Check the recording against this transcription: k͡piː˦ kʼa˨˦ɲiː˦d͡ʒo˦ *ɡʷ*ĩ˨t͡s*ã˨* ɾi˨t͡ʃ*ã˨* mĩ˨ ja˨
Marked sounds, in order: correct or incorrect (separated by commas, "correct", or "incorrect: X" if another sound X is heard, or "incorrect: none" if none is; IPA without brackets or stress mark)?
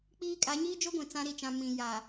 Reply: correct, incorrect: ã˦, correct